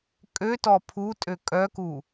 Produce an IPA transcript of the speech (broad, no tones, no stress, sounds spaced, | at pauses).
kʼ ø t ɔ pʰ u tʼ ø kʼ œ k u